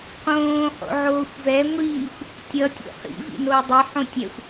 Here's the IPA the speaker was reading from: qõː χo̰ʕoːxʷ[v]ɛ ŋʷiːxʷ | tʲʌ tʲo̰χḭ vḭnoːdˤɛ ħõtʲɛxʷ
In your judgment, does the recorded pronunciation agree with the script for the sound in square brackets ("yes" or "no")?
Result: yes